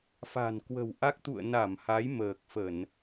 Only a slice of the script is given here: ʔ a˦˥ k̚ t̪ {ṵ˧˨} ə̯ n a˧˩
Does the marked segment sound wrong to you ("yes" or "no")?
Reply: no